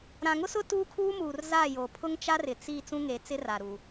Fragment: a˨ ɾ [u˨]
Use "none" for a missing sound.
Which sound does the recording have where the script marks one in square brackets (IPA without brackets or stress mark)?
u˨